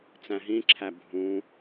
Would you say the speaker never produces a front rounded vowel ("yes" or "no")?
yes